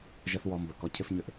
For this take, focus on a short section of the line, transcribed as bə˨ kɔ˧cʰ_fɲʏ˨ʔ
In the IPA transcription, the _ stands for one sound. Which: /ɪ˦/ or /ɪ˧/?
ɪ˦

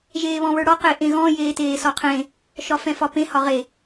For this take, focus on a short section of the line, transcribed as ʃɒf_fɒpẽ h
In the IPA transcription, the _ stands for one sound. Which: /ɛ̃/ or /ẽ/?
ɛ̃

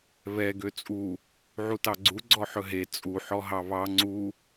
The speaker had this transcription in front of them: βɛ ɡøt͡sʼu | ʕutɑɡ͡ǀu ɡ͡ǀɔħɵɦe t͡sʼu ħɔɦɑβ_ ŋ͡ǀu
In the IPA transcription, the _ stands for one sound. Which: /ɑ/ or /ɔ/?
ɑ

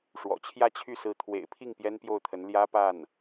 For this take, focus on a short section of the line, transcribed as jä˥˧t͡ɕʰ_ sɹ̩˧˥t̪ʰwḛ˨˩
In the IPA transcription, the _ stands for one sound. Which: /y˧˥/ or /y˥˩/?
y˥˩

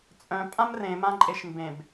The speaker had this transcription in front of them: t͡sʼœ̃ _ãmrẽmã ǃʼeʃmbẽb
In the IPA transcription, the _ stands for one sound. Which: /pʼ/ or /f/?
pʼ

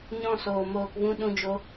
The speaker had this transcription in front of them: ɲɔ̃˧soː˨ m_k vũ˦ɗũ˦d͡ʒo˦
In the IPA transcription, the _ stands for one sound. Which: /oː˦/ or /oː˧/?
oː˧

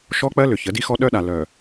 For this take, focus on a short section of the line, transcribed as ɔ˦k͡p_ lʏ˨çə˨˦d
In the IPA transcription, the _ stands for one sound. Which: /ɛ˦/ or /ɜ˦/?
ɜ˦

